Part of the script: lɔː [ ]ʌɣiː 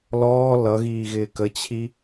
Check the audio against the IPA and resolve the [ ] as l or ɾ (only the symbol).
l